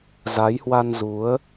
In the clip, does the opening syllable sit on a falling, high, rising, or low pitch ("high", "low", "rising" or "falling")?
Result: rising